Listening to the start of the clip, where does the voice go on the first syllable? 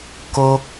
high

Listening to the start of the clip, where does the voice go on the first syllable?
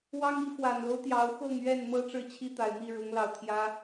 high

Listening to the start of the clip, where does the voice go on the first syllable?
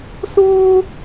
high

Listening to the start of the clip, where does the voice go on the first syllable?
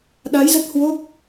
rising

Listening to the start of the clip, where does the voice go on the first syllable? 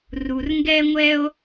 low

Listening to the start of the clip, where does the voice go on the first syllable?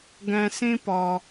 low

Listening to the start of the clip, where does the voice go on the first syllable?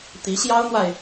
rising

